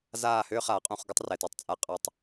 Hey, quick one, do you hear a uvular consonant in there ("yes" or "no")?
yes